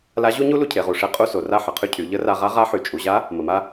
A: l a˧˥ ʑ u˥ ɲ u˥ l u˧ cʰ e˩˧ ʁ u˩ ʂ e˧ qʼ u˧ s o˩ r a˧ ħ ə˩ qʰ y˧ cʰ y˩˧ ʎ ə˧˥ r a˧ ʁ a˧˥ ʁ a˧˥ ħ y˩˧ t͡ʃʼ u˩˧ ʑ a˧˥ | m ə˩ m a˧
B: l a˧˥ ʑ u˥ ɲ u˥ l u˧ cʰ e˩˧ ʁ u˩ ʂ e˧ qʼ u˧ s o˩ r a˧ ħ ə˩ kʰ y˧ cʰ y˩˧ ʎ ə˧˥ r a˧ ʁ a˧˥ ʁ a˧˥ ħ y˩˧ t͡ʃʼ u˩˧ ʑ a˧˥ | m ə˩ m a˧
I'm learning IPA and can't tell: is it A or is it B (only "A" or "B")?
A